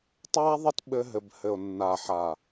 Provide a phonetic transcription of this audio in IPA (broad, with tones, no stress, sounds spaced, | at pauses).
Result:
tˤ a˦ ðˤ ɘ˦ t ɓ ɘ˦ ɦ ɘ˨ b h ɘ˨ o̯ nː a˨ ħ a˨